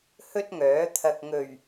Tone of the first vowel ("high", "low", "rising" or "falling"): high